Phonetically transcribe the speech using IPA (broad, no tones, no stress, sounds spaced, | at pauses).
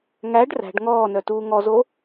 ŋ æ ɖ r æ̤ ɖ ŋ ɔː n œ t uː ŋ ɔ z o